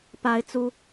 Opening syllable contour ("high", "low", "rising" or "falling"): high